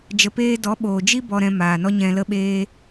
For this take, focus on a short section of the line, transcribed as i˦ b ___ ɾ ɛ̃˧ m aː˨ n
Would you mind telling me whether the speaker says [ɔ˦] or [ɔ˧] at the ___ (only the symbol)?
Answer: ɔ˧